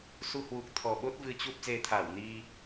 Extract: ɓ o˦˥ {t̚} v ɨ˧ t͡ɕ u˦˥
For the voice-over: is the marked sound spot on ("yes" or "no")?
yes